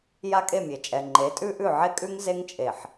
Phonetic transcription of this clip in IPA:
j a˦ kʼ e˦˨ mʲ e˨ t͡ʃʼ ɛ˨ ŋ͡ǃ e˨˦ tʼ ʉ˦ ʔ ʉ˦˨ ʕ e˦ kʼ ʉ˦ ŋ z e˦ ŋ t͡ʃʼ e˨ ħ

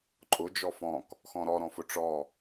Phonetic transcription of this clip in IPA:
ǃʼ ʊ d͡ʒ ɔ f ɔ̃ k | x ɔ̃ ɾ ɔ ɾ ɔ̃ f ʊ ʈ͡ʂ ɔ

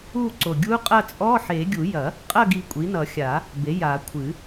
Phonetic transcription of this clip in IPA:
u˦˨ ǀ o˨˩ ɡʲ u˧˥ qʼ ɐ˦˨ t͡sʼ ɔ˧˥˧ ħ e˨˩˦ ɡʲ u˨˩˦ j ɐ˨˩˦ | qʼ ɐ˦˨ ɡ i˨˩ kʷʼ i˩˥ n ʌ˨˩˦ xʲ a˨˩˦ | b e˩˥ j a˨˩˦ kʷʰ ɨ˨˩˦

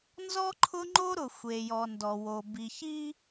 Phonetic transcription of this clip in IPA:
n z ɔ˦ ǃʰ ʊ˦ ŋ͡ǃ o˦ ɾ ʊ˨ xʷ e˨ j ɔ˨ n d ɔ˨ w o˨ b i˨ ç i˦

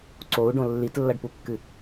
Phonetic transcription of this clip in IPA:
ǀ o u̯ ɖ õ lː i t lː ɐ ɖ p u kː ɨ

